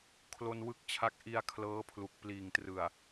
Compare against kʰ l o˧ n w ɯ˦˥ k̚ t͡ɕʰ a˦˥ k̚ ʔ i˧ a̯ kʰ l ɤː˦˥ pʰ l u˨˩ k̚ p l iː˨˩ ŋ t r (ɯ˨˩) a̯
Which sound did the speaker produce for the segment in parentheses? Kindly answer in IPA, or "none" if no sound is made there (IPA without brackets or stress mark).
ɯ˨˩